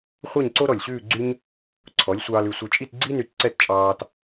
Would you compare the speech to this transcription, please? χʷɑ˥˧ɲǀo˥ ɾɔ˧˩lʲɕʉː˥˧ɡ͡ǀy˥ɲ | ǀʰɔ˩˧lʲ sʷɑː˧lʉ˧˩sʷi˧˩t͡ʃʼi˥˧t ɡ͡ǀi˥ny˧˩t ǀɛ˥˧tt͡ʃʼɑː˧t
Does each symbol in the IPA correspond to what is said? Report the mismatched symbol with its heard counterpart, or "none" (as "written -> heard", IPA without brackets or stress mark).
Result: none